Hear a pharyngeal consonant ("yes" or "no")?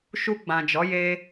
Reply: no